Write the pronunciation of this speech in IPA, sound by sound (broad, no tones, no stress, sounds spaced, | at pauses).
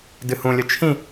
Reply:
d ɨ h ũ lʲ ɵ t͡ʃʰ ĩ